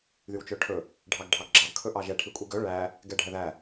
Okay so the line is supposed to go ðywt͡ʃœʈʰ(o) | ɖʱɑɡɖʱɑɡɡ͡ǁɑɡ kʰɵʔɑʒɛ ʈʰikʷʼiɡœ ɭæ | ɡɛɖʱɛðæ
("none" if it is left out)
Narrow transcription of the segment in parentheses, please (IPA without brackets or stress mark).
ɵ